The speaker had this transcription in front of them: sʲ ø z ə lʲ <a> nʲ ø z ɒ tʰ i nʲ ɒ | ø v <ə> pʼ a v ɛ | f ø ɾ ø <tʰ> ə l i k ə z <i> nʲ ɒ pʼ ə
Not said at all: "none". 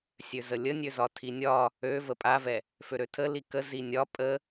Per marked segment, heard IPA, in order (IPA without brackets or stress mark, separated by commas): ə, ə, tʰ, i